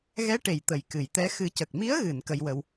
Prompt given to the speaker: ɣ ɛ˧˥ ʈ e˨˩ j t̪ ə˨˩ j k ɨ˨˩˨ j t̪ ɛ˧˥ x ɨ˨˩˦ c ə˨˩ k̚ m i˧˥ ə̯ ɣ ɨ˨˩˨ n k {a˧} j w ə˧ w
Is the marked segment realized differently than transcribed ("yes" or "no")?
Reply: yes